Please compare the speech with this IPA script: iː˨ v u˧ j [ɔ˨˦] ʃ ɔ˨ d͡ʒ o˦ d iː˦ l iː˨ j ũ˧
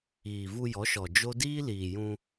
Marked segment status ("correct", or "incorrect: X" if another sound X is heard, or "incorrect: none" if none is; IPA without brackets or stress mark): correct